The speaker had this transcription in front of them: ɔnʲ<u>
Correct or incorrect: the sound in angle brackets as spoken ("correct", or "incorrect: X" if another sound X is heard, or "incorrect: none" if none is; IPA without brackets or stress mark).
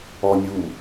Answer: correct